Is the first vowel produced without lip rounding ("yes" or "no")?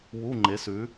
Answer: no